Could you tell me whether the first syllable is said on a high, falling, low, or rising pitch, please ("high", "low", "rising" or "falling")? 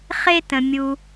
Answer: high